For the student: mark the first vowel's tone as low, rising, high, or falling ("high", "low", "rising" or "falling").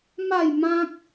falling